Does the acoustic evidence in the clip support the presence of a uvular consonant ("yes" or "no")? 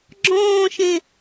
no